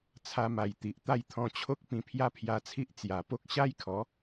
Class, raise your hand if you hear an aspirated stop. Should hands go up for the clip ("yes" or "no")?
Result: yes